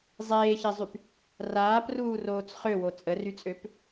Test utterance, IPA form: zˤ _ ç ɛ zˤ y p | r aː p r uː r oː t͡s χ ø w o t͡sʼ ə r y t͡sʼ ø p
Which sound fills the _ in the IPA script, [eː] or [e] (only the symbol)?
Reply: eː